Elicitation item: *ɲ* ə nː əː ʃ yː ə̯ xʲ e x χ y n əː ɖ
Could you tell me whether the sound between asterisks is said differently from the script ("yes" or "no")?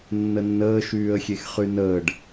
yes